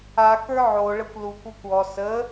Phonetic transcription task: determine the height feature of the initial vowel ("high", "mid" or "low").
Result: low